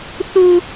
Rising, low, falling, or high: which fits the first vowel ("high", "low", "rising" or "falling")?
high